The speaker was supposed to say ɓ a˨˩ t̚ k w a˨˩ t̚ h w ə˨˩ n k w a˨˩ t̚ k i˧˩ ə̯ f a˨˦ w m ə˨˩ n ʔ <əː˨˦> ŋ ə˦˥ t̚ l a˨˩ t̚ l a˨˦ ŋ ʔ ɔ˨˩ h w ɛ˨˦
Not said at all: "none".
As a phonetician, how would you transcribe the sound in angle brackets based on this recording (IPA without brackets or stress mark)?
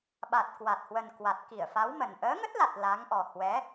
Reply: əː˨˦